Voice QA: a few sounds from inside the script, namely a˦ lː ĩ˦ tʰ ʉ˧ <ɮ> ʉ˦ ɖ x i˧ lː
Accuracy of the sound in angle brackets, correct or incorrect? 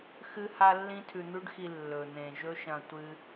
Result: incorrect